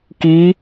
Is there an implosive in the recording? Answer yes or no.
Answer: no